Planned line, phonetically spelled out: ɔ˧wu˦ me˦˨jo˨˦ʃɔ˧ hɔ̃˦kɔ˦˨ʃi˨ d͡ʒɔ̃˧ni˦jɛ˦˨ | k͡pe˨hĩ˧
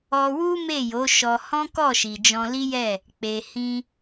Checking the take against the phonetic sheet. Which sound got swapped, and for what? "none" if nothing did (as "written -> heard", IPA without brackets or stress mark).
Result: n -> l